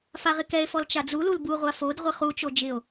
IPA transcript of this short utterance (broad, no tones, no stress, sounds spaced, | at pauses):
f a ʁ ɪ k ɛ e̯ f ɔ l t͡ʃ a d͡z u l u l b u ʁʷ a f o d ʁʷ ɪ χ u t͡ʃ o d͡ʒ ɪ o̯